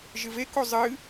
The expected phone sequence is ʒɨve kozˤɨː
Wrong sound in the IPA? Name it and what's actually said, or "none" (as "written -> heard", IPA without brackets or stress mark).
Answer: none